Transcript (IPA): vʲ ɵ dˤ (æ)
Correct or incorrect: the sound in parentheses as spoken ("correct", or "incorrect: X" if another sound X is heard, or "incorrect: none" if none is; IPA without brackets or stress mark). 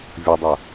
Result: incorrect: ɐ